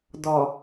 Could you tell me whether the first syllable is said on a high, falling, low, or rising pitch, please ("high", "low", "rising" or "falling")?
low